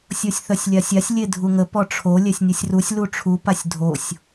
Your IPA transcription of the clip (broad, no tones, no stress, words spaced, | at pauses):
sʲosʲθœsʲlʲasʲasʲ lʲedʱuŋə pɔʈ͡ʂʰo lʲɛsʲnʲosʲrusʲ luʈ͡ʂʰu pasʲdʱosʲ